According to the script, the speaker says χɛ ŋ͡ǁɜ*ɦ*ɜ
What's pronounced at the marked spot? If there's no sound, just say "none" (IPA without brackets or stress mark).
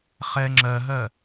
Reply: ɦ